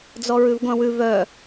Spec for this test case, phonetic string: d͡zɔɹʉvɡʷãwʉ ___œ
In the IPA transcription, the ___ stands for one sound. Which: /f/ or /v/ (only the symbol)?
v